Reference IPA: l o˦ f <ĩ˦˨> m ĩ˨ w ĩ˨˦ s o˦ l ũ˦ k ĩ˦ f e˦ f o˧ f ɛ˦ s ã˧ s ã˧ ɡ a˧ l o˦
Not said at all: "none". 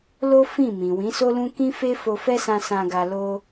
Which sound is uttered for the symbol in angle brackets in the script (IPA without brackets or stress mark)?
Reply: ĩ˦˨